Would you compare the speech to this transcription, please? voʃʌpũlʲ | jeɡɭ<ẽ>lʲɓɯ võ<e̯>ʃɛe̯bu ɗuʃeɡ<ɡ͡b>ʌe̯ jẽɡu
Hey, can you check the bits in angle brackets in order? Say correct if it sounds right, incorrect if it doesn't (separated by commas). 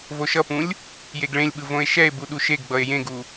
correct, correct, correct